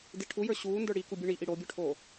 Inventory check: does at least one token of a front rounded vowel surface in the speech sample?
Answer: no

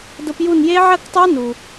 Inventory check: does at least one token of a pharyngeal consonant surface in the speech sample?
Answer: yes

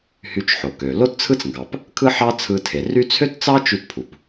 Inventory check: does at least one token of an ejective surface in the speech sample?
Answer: no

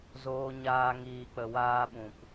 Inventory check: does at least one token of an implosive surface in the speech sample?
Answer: yes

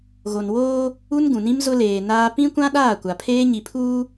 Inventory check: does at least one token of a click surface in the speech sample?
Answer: no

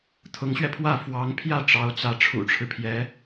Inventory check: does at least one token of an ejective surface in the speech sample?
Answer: no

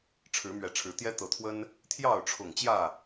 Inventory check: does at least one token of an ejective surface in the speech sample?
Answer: no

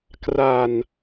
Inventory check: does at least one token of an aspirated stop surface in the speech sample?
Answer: no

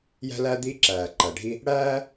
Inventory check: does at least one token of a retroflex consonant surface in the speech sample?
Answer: yes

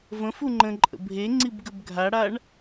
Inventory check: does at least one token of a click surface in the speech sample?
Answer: yes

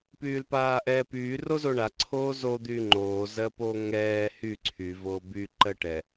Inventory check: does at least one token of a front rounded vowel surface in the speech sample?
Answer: yes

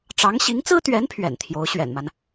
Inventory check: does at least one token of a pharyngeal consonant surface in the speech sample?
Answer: no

